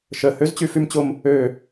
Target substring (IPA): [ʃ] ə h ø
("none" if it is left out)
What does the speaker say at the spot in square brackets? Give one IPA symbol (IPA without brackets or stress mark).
ʃ